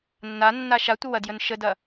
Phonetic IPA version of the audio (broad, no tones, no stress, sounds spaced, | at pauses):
nː a nː a ʃ a tʷ ə w ɐ d j ə n ʃ ə d ɐ